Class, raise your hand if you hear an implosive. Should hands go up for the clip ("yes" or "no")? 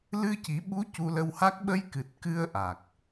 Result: yes